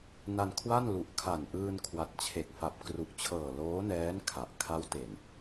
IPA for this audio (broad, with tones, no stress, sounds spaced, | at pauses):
n a˧ n kʰ w a˥˩ n l u˨˩ ʔ kʰ a˨˩ n ʔ ɯː˧ n kʰ w a˨˩ t̚ t͡ɕʰ e˨˩ k̚ f a˨˩ p̚ k r u˨˩ ʔ t͡ɕʰ ɤː˨˩ l oː˦˥ n ɛː˦˥ n kʰ a˨˩ ʔ kʰ a˦˥ w t e˨˩ n